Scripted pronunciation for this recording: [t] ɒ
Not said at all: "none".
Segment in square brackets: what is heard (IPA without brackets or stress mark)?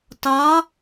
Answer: t